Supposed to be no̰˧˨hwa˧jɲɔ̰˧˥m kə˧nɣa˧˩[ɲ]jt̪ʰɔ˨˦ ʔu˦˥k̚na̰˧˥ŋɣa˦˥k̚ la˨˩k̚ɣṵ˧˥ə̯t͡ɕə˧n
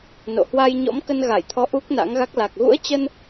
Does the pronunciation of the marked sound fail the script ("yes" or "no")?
yes